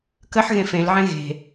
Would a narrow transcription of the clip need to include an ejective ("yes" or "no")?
no